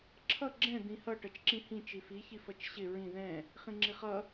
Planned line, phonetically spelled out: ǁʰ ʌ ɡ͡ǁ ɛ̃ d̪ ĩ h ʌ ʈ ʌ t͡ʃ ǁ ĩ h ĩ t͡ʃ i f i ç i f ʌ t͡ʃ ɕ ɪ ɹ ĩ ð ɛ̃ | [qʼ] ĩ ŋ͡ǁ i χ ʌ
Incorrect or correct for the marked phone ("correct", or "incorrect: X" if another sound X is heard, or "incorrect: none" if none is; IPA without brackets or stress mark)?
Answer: incorrect: χ